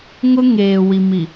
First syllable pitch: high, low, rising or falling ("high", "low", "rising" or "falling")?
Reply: high